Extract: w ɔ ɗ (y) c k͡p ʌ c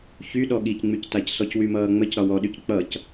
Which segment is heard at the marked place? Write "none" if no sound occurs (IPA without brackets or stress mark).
y